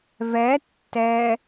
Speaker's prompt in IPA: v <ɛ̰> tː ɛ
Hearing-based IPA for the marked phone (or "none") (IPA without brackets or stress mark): ɛ